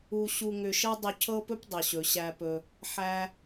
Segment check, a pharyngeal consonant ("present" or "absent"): present